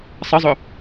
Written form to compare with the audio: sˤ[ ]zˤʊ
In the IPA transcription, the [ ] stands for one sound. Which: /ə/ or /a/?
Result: ə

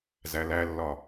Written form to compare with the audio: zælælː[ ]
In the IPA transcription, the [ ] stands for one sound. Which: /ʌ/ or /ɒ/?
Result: ɒ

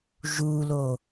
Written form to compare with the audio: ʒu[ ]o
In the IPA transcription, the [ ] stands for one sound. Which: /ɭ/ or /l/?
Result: l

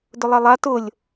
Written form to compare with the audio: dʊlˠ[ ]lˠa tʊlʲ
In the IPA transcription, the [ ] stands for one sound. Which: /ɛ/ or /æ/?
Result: ɛ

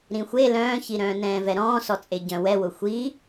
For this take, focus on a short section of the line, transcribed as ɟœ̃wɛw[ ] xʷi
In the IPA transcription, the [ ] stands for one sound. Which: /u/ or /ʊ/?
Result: ʊ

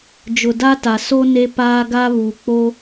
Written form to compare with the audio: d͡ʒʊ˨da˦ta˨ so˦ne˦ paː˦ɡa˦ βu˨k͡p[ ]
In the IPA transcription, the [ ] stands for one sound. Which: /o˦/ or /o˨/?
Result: o˦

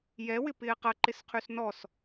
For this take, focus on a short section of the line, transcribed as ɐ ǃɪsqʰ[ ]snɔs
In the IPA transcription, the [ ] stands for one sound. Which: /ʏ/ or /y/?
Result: y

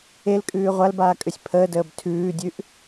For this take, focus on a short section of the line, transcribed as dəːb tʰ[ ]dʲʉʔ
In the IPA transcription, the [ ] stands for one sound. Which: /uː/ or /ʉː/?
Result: ʉː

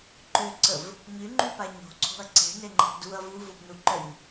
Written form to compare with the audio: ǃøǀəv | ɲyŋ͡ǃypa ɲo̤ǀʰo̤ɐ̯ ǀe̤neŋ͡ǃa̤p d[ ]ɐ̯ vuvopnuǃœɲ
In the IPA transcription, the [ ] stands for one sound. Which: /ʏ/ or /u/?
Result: u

